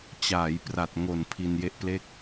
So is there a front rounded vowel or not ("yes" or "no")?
no